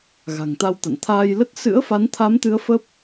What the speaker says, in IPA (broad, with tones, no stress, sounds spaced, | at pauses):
ɣ a̤˨˩ ŋ t̪ a˧ w t̪ a̰˧˨ n t̪ʰ aː˧ j l ə˦˥ t̚ s ɨ̰˧˥ ə̯ f a˨˦ n t̪ʰ a˨˦ m t̪ ɨ˨˦ ə̯ f ə˦˥ p̚